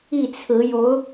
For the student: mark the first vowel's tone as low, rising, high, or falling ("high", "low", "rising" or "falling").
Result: falling